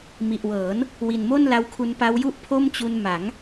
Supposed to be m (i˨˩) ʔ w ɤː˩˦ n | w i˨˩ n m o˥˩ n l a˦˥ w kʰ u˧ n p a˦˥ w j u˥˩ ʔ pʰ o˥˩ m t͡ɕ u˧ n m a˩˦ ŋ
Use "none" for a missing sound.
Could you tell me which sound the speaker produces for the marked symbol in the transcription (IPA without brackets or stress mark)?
i˨˩